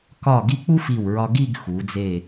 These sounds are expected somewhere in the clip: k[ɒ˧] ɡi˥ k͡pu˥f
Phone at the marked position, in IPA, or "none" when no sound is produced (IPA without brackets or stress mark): ɒ˧˩